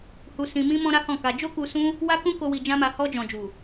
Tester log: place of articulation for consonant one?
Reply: glottal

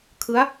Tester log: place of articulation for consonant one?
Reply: velar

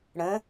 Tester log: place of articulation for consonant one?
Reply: retroflex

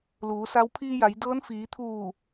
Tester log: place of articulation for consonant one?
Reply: alveolar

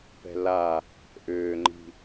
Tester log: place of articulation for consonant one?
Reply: labial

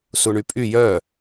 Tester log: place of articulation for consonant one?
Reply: alveolar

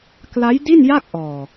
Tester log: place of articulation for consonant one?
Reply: velar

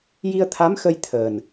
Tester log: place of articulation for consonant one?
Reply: palatal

